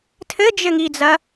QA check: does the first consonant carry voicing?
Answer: no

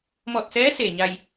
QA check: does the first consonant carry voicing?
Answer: yes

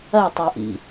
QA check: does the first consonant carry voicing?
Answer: no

